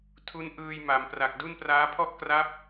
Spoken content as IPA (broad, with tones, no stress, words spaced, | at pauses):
tʰu˦˥nʔɯː˧jma˩˦mpra˨˩k̚ du˥˩npraː˦˥ pʰɔ˥˩ʔkra˦˥p̚